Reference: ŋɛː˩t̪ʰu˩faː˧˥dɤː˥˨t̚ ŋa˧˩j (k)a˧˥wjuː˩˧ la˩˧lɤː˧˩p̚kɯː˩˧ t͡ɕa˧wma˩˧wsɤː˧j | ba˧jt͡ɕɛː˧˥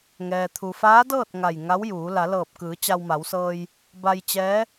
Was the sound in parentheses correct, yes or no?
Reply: no